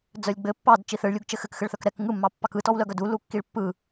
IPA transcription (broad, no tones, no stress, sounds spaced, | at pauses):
d͡z œ lʲ ɡ͡b ɘ pː ɑ d t͡ʃ i θ ɘ ɭ lʲ u ɡ t͡ʃ ɘ x ɘ k x ɘ ɭ θ œ k ɾ ɛ k ŋ ɯ mː ɑ pː ɑ k ɯ t ɔ w l œ ɡ œ d u l u kː i ɭ pː ɯ